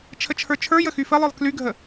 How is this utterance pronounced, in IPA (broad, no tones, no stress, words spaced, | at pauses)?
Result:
t͡ʃʰət͡ʃʰə˞t͡ʃʰə˞ jəxyfəlˠə˞lˠ klyɡʱə